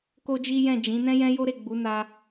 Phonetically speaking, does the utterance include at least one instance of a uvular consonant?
no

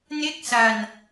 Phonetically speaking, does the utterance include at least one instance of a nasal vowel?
no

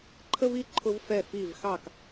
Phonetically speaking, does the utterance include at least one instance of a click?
yes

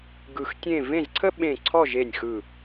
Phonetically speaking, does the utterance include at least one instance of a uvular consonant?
no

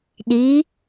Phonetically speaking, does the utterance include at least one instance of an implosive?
yes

